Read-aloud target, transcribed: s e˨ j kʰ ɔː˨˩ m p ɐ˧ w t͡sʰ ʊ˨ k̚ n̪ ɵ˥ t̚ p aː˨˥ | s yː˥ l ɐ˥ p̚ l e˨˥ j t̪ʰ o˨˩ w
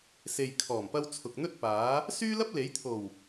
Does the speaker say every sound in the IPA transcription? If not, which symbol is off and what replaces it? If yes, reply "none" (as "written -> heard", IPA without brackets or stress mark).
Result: none